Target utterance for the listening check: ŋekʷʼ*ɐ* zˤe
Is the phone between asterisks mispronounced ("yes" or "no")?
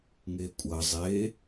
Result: no